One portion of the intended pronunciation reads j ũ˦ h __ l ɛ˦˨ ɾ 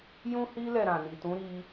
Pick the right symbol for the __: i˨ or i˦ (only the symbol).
i˦